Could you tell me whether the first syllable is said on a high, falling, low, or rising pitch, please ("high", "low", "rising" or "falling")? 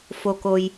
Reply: low